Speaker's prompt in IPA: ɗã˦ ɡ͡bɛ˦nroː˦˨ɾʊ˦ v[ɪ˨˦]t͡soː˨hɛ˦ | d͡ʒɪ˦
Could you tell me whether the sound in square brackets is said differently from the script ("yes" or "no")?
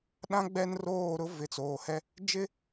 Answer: no